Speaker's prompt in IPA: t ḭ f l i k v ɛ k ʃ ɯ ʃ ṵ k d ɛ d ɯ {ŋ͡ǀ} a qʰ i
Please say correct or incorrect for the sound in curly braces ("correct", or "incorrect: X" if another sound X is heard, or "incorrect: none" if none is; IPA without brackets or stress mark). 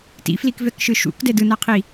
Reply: incorrect: n